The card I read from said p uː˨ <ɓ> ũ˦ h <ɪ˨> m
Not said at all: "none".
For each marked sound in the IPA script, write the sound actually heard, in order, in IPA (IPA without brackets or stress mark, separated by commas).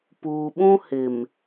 ɓ, ɪ˨